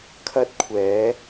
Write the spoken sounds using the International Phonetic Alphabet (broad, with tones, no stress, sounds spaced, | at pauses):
kʰ ɐ˥ t̚ kʷʰ ɛː˨˥